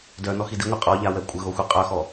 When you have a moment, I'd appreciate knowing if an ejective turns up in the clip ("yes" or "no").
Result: yes